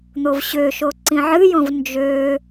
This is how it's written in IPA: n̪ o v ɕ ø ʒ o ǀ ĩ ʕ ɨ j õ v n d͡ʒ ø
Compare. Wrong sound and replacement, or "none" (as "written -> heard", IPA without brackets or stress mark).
ʒ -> ʃ